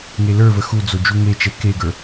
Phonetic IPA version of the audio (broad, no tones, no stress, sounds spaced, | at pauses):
ŋ e l ə˞ v ə x u d͡z o d͡ʒ u ŋ e t͡ʃ ɛ k e ɡ ə˞